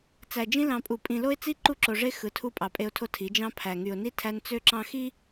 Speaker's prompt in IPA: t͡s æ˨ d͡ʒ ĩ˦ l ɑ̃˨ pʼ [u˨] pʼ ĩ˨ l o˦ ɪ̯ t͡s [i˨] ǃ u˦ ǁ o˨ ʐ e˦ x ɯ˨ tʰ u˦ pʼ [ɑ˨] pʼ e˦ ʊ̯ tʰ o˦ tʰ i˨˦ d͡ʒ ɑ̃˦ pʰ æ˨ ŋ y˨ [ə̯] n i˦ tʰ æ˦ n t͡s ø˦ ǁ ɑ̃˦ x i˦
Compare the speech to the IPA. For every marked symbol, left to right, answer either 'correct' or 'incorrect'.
correct, incorrect, correct, incorrect

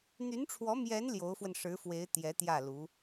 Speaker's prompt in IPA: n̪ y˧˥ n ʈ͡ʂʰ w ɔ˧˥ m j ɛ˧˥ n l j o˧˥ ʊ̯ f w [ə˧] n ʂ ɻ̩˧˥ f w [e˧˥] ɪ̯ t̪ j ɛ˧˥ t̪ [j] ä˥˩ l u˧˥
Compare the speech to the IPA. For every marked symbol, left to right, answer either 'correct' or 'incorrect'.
correct, correct, correct

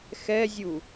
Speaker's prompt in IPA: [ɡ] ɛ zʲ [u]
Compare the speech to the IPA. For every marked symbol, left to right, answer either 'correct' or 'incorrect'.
incorrect, correct

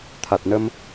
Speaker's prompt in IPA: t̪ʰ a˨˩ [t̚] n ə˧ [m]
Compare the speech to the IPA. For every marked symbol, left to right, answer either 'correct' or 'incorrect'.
correct, correct

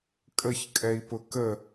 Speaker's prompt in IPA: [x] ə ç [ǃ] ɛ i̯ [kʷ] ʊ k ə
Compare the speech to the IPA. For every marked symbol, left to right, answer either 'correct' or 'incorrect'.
incorrect, incorrect, incorrect

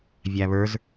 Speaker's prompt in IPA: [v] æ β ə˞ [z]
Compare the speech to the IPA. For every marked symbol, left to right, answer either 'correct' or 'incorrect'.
incorrect, correct

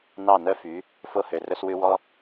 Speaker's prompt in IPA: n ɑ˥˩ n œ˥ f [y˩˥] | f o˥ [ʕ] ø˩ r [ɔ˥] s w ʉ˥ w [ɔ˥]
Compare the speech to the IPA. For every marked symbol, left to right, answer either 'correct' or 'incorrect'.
correct, incorrect, incorrect, correct

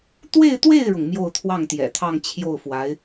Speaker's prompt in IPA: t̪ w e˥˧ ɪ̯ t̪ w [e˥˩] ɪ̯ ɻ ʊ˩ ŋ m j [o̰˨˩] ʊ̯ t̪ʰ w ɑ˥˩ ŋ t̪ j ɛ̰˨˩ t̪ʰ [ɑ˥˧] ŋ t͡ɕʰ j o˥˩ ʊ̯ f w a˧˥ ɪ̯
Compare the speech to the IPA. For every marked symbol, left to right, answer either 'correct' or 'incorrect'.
correct, incorrect, correct

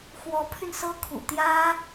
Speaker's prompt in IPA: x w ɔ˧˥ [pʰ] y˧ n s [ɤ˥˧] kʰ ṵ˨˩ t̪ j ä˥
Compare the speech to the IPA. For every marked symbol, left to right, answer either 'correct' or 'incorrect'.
correct, incorrect

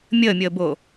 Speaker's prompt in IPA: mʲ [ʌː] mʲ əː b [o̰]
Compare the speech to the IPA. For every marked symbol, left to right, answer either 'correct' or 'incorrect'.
incorrect, incorrect

